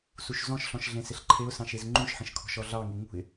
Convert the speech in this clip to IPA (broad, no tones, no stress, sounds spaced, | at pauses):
s u ʃ z ɔ̃ ʃ ɬ ɔ̃ ʃ ɮ ẽ s ɪ ɬ ǃʰ e ʊ̯ s ɑ̃ ʃ e z ŋ͡ǃ ũ ʃ ħ ə̃ ʃ kʰ ɔ̤ ʃ ɔ ɮ ɑ ŋ e ŋ ṳ ɪ̯